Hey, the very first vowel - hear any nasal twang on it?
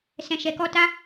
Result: yes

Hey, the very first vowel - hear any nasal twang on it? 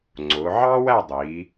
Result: no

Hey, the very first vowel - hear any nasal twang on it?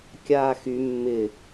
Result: no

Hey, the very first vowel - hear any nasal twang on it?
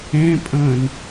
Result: yes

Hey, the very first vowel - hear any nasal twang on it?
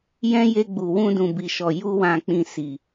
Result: yes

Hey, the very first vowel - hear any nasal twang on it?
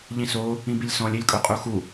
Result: yes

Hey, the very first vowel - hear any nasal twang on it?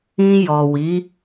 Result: yes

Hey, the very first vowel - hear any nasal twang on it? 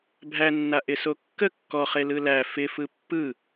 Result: no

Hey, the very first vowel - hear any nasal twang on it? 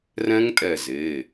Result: yes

